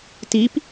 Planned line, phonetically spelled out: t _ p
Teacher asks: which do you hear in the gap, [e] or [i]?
i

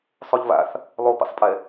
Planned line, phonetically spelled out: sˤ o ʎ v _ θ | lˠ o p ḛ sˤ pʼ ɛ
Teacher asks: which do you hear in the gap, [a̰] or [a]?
a̰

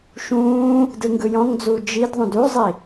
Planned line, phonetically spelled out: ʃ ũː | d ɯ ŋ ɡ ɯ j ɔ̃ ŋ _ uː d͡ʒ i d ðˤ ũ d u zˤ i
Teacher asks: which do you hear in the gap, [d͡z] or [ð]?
d͡z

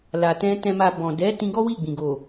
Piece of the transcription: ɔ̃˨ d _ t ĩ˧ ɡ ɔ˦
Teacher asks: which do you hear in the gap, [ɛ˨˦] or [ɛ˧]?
ɛ˨˦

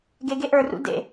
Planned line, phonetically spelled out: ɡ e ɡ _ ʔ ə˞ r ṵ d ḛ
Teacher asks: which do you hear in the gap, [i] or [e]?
e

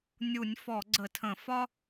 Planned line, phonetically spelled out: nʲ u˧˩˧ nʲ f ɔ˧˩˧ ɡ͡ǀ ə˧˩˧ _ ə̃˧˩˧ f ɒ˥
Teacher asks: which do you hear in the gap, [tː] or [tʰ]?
tʰ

